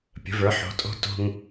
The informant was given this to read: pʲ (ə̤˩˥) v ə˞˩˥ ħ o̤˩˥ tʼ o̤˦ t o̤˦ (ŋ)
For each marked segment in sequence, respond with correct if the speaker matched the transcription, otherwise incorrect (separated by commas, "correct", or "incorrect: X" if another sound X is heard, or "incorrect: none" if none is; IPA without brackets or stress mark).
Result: correct, correct